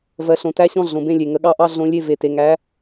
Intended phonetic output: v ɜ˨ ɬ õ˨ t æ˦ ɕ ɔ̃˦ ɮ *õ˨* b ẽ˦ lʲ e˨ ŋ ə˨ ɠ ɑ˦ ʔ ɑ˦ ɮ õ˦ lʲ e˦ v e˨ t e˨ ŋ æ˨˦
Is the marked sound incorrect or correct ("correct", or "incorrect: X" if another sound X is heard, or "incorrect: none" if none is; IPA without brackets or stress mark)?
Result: correct